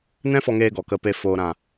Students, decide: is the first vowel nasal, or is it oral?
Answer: nasal